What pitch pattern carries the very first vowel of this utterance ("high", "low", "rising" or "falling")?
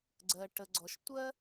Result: low